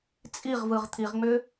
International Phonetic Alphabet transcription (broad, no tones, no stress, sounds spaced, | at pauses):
t͡sʼ i ʁ v ɯ ʁ t̪ʰ i ʁ ŋ͡m ʏ